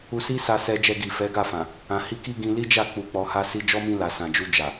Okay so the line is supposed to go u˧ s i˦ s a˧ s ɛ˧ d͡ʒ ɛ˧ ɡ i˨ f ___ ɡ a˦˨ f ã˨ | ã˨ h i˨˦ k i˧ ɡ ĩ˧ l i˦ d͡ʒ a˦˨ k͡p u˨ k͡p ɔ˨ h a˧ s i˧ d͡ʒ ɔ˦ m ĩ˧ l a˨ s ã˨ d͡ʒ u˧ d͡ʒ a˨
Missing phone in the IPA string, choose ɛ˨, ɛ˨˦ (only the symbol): ɛ˨˦